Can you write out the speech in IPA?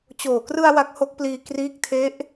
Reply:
t͡ɕoː˨˩krɯ˧a̯ wa˦˥k̚ho˦˥k̚pliː˧ kriː˦˥k̚tʰe˦˥ʔ

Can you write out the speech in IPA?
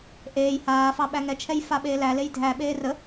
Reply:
ʔeːj haːfɑ ɓæŋɛt͡ʃʰɛj faɓeːlælej dʱæɓeː rə

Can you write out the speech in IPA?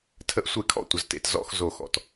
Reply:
tʰə˦˨ʔsʷe˦˨kʰɔ̰˦˨ tʷə˨ztḛ˨t zɔ̰˦˨x zo˦˨xɔ̰˨t

